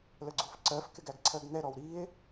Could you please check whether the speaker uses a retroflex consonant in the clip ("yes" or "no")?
no